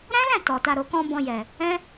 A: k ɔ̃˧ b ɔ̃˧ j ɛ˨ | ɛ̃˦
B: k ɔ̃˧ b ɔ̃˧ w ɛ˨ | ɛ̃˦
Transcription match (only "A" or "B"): A